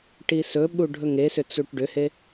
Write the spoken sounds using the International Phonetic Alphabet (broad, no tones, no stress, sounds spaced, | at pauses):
ʈ i s ɵ ɓ u ɖʱ ɵ ŋ e s ʏ t͡s u ʈ ɖ ʏ h e